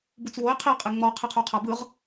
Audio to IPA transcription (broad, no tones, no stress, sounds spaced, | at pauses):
b u t͡s w o ɪ̯ qʰ i qʼ e ŋ͡m ɔ qʰ i qʰ u qʰ a b ɯ ʁ